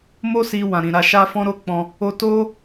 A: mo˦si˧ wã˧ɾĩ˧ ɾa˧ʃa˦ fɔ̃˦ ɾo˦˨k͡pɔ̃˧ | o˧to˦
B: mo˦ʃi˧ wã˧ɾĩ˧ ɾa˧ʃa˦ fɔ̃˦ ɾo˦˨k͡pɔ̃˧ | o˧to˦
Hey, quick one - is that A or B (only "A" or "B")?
A